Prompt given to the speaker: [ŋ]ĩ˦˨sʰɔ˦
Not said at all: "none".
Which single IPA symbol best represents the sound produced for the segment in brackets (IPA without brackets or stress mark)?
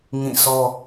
ŋ